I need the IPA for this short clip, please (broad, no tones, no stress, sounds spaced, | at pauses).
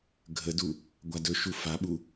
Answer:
ɡʱ ə d u | ɡʷ a d ɵ ʃ u f a ɓ u